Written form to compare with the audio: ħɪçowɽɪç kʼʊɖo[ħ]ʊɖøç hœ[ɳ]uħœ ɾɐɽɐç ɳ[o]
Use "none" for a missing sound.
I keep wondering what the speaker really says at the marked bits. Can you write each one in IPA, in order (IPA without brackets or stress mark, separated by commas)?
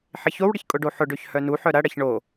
ħ, n, o